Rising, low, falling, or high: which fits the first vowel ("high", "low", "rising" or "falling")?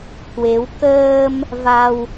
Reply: rising